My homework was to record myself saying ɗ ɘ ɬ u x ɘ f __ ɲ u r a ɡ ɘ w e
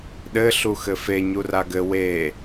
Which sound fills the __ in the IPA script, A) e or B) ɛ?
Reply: A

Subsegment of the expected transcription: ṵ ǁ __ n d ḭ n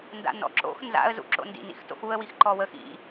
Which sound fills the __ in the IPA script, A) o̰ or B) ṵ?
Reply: A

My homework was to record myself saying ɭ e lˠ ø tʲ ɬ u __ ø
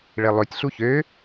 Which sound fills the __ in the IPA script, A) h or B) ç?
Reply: B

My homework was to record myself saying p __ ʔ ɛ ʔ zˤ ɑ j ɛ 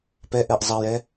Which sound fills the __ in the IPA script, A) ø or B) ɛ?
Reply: B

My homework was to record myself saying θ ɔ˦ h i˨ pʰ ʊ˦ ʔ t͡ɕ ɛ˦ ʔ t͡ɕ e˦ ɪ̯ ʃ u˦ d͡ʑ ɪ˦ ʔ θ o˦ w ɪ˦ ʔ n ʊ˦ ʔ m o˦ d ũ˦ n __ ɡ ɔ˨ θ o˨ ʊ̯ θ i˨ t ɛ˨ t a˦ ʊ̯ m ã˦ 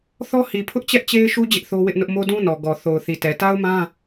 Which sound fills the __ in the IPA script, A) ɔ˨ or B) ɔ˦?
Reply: A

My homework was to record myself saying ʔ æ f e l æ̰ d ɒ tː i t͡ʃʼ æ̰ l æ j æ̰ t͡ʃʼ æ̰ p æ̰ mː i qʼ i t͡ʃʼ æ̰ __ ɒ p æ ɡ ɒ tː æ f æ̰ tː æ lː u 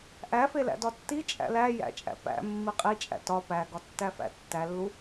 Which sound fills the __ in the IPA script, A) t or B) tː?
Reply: A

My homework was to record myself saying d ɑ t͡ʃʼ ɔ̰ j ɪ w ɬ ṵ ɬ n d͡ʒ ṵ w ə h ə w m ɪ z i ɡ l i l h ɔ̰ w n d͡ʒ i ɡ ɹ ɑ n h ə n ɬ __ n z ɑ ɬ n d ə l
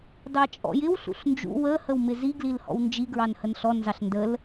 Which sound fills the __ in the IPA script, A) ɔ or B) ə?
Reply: A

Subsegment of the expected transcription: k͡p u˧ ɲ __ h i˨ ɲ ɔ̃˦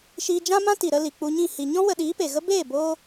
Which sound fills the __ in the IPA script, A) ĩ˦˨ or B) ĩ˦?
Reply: A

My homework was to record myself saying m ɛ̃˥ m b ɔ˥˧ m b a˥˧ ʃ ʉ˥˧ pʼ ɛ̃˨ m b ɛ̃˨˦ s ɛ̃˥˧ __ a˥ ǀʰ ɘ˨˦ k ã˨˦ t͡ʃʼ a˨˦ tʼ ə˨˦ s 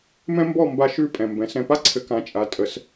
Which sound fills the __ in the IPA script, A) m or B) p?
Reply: B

